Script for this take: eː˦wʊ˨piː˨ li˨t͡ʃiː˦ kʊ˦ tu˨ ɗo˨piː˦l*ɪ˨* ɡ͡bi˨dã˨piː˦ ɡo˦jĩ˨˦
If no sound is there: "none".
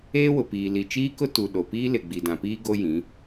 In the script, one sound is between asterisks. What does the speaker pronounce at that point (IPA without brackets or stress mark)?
ɪ˨